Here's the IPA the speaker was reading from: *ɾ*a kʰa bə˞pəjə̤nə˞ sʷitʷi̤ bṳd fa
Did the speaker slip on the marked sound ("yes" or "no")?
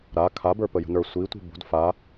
no